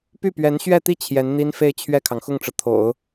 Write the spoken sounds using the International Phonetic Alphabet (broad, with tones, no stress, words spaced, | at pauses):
py˥˩pɥɛ˧˥nɕɥɛ˥˧t̪i˥˩ t͡ɕʰjɛ˧˥nn̪i˥nfe˥˧ɪ̯ t͡ɕʰɥɛ˥˩kʰɑ˩ŋxʊ˥˩ŋʈ͡ʂɤ˩ t̪ʰo̰˨˩˦ʊ̯